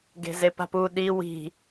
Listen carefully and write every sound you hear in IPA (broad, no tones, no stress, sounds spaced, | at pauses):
ɡ e̤ z e p a̤ p u ɗ i w i̤